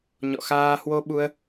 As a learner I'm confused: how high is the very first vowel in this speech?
mid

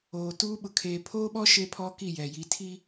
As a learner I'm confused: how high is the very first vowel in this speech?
mid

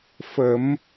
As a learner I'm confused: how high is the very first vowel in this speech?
mid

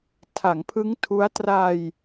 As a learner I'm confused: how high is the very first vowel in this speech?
low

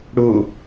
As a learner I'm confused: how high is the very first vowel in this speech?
high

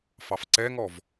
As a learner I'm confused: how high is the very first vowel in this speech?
low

